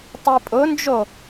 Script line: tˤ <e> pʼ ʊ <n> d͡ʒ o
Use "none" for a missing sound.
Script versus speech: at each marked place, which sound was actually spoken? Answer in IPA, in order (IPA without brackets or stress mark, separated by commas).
i, n